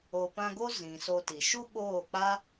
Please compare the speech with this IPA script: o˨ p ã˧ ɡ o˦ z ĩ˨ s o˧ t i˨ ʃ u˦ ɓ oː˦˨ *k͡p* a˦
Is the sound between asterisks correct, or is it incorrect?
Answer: correct